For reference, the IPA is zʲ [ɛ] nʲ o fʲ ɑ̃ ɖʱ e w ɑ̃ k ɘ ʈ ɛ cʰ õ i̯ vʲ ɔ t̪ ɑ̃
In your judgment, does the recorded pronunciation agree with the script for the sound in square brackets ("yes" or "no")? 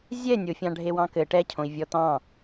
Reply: yes